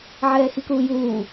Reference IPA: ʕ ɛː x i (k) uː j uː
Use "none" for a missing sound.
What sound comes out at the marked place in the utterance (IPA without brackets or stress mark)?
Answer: k